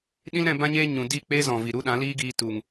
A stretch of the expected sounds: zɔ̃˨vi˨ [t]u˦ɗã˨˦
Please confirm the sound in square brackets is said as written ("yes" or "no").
no